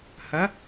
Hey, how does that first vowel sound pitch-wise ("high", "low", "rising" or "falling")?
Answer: rising